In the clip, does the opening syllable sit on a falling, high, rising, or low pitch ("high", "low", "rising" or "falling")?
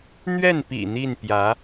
falling